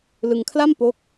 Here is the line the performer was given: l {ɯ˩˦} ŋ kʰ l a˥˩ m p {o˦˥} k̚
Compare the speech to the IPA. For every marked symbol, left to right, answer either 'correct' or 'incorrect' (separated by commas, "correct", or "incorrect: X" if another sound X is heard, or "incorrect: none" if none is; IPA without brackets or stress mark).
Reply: incorrect: ɯ˧, correct